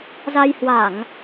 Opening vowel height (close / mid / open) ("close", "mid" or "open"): open